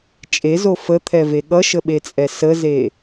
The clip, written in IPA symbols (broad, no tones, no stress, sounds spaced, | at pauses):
t͡ʃʼ e z o f ə t̪ʰ ɛ v e ɠ ʌ ʃ ə ɓ e t͡sʼ ɛ s ə z e